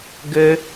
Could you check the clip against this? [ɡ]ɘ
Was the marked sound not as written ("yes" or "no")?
no